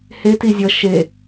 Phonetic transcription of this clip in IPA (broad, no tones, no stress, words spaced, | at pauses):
heti zʲʌ ʃe